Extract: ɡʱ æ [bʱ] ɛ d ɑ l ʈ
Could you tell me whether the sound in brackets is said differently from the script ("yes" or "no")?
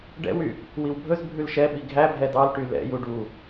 no